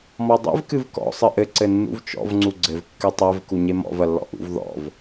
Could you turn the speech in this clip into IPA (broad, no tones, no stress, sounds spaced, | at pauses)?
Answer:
m ɔ dˤ ɛ̰ v k ɨ v k ɔ̰ sˤ ɨ ʔ ɘ ǀ ɘ nː ṵ v t͡ʃ ɔ̰ v ŋ͡ǀ u ɡ͡ǀ ɘ v kː ɨ tˤ ɛ v k u ɲ e m ɔ̰ v ɐ lː ɔ̰ ʔ ṵ v ð ɔ̰ v